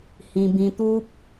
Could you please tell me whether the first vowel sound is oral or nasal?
nasal